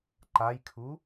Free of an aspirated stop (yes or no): no